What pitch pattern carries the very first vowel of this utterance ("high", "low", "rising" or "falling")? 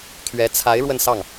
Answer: rising